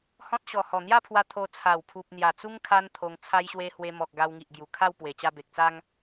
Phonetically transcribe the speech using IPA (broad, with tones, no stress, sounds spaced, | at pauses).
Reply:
h ɔ̃˦ t̚ ɕ ɔ˨˩ h ɔ˨˩ n̪ j a˥˧ pʰ w a˧ t̪ʰ o˧ t͡sʰ a˨˩ w pʰ u˨ p̚ n̪ j a˨˩ t͡s u˦ ŋ kʰ a˦ n t̪ʰ o˧ ŋ t͡sʰ a˦ j ɕ w e˦ h w e˧ m ɔ˨ k̚ ɡ a˧ w ŋ i˨ ʔ ɡ j u˨˩ kʰ a˥˧ w p w e˨˩ t͡ɕ a˧ b e˨ k̚ t͡s a˦ ŋ